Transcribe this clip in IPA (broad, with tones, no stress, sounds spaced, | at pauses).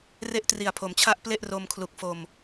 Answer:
r e˦˥ ʔ t r i˨˩ a̯ pʰ o˩˦ m t͡ɕʰ a˦˥ ʔ p l e˥˩ ʔ r o˧ m kʰ l u˨˩ k̚ f o˨˩ m